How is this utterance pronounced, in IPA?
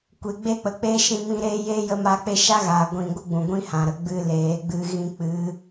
kʷ e˨ ɡ͡b e˦ k͡p ə˨ k͡p e˦ ʃ ĩ˧ m ĩ˧ ɾ eː˦ j eː˦ j ə˧ m a˧ k͡p e˦ ʃ a˦ ɣ aː˨ ɡʷ ĩ˨ ɡʷ ə˦ ɡ͡b ũ˨ ɡʷ ĩ˦ h ã˨ ɾ ə˨ ɡ͡b ɨ˧ l eː˨˦ ɡ͡b ɨ˦ ɣ ĩ˧ k͡p ɨ˨˦

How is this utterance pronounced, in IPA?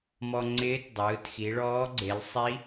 m ɔ˧ ŋ͡ǀ ɪː˧˥ t dˤ ɯː˩˧ t x i˩˧ ɭ ɔː˧˥ ɡ͡ǀ e˩˧ l sˤ i˧˥

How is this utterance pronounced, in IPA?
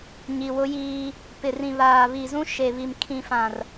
ɲ i˨ w ʊ˦ j iː˦ | p ɪ˨ r ĩ˨ β aː˨ β i˨ z ũ˦ ʃ e˨ β i˨ m kʰ ĩ˨ f ã˨ r

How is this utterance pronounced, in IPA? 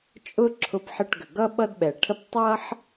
t͡ʃʼ ʊ˦ ǁʰ ʊ˧˩ p ħ ə˧˩ ʈ ɡ ə˩ ɡ ʌ˦ ɓ ʌ˦ d ɓ ɛ˩ ʈʰ ə˦ p tˤ ʌ˦ ħ

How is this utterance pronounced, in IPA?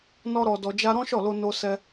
n ɔ˦ ɾ ɔ˧ d ɔ˧ d͡ʒ a˦ ɾ ɔ̃˦ ʃ ɔ˦˨ l o˧ n o˦ s ɛ˦

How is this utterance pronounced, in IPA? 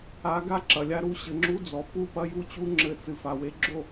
a˨˦ ɡ a˦ ǁ ɐ˨ lʲ a˦ ɾ u˦˨ ɕ ɘ˨ ŋ͡ǁ u˦ d͡z ɔ˨ p u˦˨ p ɐ˦ j u˦ t͡ɕ u˦ ŋ͡ǁ ɘ˦ t͡s ɨ˨ f a˨ w e˦ ɡ͡ǁ o˦˨

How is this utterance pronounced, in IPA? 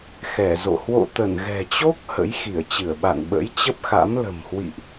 x ɛ˧˩ z o̰˧˨ h w o̰˧˨ t̪ ə˧˩ n ɣ ɛ̤˨˩ t͡ɕ o˦˥ k̚ h ə̰˧˥ j x i˧˩ ə̯ t͡ɕ ɨ˧˩ ə̯ ɓ a̰˧˨ n ɓ ə̰˧˥ j t͡ɕ ə˦˥ p̚ x a̰˧˥ m l ə̤˨˩ m h w ḭ˧˨ ʔ

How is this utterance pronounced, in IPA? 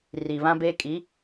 r i˨ β ã˦ b eː˦ kʼ i˨˦

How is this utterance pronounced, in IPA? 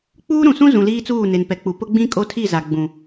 k͡p uː˦ ɾ ũ˨ s ũ˦ z ũ˨ l iː˦ t͡s uː˦˨ n e˨ n p ɛ˨ k͡p u˨ p ʊ˦ ɡ͡b ĩ˦ kʼ o˦ tʰ i˦˨ z a˨ ɡ͡b ũ˨

